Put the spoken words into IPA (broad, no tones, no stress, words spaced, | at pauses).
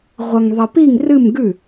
ʁʷɐŋðˤɐpiŋ rɨm ɡʉ